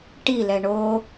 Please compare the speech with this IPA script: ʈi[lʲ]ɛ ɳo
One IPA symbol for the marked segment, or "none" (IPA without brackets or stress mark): l